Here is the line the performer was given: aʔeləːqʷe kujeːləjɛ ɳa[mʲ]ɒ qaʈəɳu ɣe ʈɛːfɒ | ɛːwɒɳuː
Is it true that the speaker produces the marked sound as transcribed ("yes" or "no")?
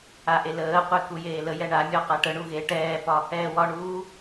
yes